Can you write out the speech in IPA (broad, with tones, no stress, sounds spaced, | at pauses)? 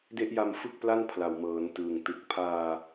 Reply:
d e˦˥ ʔ j a˧ m f ɯ˥˩ k̚ p l a˥˩ n pʰ l a˨˩ w m ɤː˩˦ n t ɯː˨˩ ŋ t ɯ˨˩ k̚ pʰ aː˧